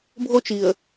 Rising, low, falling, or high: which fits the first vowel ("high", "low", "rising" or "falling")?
high